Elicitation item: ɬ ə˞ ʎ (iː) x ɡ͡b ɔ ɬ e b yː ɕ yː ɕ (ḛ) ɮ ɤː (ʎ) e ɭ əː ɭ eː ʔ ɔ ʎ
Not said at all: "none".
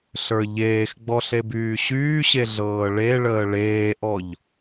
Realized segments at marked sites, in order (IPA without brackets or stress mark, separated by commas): eː, e, ɭ